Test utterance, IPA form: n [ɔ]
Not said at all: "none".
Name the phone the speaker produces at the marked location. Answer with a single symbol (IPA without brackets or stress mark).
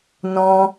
ɔ̃